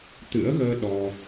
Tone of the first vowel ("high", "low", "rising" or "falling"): rising